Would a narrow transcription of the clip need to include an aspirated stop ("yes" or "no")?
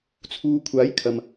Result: yes